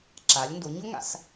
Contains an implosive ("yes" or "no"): no